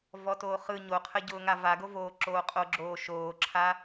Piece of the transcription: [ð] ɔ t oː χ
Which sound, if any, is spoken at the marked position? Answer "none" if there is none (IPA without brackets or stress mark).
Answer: v